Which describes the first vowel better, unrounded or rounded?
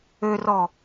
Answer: rounded